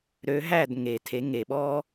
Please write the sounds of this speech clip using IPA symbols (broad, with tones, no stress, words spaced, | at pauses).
ɾø˩˥ɦæ˥˩d ŋe˩ tʰe˩˥ŋe˩ɓɔː˥